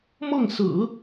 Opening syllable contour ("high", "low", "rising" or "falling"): falling